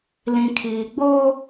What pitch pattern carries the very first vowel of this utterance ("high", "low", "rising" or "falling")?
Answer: low